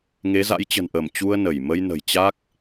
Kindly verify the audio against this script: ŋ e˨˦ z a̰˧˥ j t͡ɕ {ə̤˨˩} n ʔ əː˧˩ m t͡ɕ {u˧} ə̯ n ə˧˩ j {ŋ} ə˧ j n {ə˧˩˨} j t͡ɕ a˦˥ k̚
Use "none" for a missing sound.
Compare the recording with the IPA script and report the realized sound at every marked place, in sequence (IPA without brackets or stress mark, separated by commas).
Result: ə̤˨˩, u˧, m, ə̤˨˩